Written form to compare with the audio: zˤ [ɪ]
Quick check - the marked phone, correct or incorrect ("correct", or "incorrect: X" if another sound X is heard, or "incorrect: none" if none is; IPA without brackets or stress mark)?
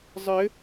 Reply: correct